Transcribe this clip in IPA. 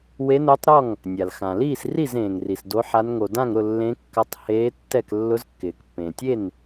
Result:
w e˧˥ n o˧˥ tˤ ɾ ɔ˥˩ ŋ | nʲ a˩ l x ã˩ l iː˥˩ s r i˥˩ z ẽː˩ ŋ r i˩ s d o˧˥ ħ a˧˥ n ŋ o˩ d ã˥˩ ŋ ɾ ʊ˥˩ lː ẽ˧˥ kː a˧˥ tˤ h eː˧˥ tː ɛ˥˩ k lː ʊ˧˥ z kː ɪː˩ k pː ẽ˩ tʲ e˥˩ n

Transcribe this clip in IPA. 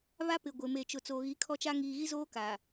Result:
β a˦ p ɪ˨ ɡʷ ɪ˨ m e˨ t͡ʃ ʊ˨ t͡s oː˨ ɣ i˨˦ kʰ ɔ˦ t͡ʃ a˦ ŋ iː˨ ɣ i˦ z oː˦ k aː˨

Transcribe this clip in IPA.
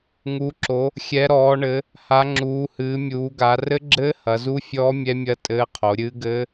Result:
ŋ u˩˧ ǁ o˩˧ | xʲ ɛ˩˧ ɾ ɔː˩˧ ɳ ɘ˩˧ | h a˩˧ ŋ͡ǁ uː˩˧ h ɨː˩˧ mʲ uː˩˧ ɡ a˩˧ r ɘ˦˥ ɡ͡ǁ ɘː˦˥ h ɐ˩˧ z u˦˥ fʲ ɔː˦˥ mʲ ɛ˦˥ mʲ ɐ˦˥ tʼ ɘː˦˥ qʰ o˩˧ ɾʲ ɨː˦˥ ɡ ɘː˦˥

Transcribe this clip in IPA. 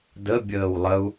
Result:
d ə bʲ əː w lˠ ə u̯

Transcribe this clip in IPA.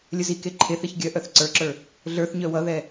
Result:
lʲ ə z i k e ǃʰ e θ e ç ɡʲ œ ʔ œ θ ǀ ə˞ ǁ ə˞ | ɮ ə˞ θ ɲ œ w ʌ ð ɛ

